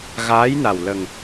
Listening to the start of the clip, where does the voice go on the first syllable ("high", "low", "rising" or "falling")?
rising